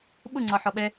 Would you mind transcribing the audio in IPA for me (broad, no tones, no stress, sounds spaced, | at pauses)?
ɓ ʊ ŋ͡ǀ ɒ ħ ɔ ɓ ɛ